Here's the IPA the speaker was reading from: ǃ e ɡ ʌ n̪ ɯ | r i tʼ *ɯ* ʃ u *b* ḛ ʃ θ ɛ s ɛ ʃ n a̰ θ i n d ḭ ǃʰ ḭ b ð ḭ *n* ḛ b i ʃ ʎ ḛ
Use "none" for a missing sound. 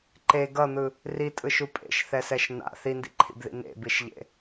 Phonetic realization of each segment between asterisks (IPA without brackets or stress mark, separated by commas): ɯ, pʼ, n